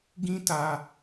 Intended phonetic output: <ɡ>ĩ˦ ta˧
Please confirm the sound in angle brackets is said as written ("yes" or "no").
yes